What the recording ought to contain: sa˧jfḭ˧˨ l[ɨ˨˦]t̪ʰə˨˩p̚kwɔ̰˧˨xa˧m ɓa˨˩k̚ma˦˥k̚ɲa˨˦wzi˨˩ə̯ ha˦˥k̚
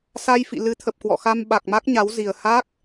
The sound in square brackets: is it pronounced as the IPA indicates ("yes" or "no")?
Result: yes